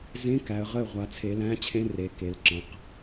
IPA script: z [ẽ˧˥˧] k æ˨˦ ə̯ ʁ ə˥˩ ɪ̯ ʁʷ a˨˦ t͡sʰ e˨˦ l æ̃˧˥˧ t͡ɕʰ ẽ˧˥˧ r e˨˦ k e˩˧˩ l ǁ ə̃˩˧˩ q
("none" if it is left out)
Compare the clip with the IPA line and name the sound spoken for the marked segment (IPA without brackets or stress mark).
ẽ˧˥˧